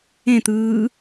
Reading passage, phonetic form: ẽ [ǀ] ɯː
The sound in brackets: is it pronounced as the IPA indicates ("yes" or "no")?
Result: no